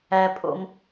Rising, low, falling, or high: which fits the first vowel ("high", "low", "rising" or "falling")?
high